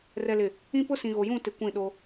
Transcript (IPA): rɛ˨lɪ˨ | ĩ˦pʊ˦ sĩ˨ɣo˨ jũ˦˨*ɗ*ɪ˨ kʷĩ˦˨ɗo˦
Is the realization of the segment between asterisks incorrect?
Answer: yes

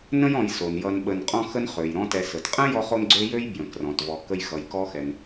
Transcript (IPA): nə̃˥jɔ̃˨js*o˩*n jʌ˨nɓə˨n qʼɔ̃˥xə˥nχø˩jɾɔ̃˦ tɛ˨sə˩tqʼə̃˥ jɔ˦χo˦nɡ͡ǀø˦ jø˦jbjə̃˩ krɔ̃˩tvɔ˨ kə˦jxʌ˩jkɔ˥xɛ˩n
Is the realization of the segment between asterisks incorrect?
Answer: no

